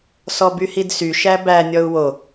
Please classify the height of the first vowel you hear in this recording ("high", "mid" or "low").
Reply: mid